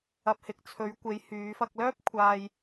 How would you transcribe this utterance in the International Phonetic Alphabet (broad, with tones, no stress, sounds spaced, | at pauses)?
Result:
ɐ˨ p̚ h ɪ˨ k̚ t͡sʰ ɵ˨˧ ɥ kʷ e˨˧ j h yː˨˧ f ɐ˧ k̚ l œː˥ p̚ kʷʰ aː˧ j